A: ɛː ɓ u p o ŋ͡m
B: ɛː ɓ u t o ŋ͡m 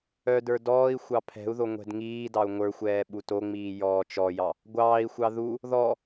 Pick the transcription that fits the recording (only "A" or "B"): B